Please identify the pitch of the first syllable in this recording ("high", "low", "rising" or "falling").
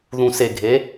low